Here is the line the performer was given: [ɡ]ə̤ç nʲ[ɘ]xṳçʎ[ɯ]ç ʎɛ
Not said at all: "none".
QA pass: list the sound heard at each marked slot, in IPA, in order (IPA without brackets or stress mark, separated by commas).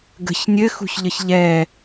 ɡ, ɘ, ə